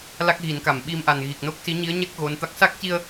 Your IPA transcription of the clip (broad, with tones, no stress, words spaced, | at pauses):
la˦˥k̚ɣi˨˩˦nka˨˩˨mɓi˧m ʔa˨˩nɣi˨˩k̚no˦˥k̚ si˧˥ɲi˧˥ə̯ɲɛ˦˥k̚ ɣo˧˥nt̪a˦˥k̚ sa˦˥k̚ci˧ə̯